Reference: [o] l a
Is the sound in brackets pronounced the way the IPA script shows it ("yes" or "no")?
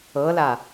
no